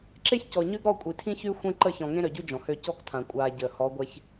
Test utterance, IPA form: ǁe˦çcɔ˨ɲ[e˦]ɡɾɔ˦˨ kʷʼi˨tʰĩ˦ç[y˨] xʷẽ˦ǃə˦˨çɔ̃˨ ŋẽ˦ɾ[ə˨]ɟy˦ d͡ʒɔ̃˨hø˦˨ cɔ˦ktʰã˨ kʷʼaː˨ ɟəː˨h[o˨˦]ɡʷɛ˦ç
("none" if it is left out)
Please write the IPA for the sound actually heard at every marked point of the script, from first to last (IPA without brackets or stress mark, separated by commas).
ø˦, y˦, œ˨, ɔ˨˦